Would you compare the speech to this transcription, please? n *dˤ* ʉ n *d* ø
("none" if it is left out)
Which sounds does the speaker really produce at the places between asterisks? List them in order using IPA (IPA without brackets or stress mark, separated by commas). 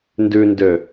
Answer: d, d